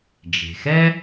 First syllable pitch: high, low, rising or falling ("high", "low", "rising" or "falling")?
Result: low